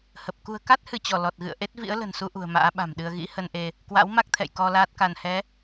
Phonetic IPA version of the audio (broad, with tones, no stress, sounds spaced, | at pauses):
h ə˨˩ p̚ k ṳ˨˩ ə̯ k a˦˥ t̚ h ɨ˧˩ t͡ɕ ɔ˧˩ l ɔ˨˩ t̚ ɣ ɨ̰˧˨ ə̯ ʔ e˦˥ t̚ v ḭ˧˥ ə̯ l ə̤˨˩ n s u˧ ʔ ṳ˨˩ ə̯ m a̰ː˧˥ ɓ a̤˨˩ m ɗ ɨ˧ ə̯ ɣ ḭ˧˥ h ə˧ n ʔ e˧ | k w a̰˧˥ w m a˦˥ k̚ t̪ʰ ɛ̰˧˨ j k ɔ˧ l aː˦˥ t̚ k a˧ n h ɛ˨˦